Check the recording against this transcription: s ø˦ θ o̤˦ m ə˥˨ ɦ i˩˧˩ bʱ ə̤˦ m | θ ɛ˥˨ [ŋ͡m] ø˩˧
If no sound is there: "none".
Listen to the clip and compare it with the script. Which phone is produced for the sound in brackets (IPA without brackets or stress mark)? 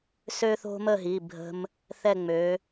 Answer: ŋ͡m